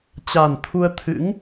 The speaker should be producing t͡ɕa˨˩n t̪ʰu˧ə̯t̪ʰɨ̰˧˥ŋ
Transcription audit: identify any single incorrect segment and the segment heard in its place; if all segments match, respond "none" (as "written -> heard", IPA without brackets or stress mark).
none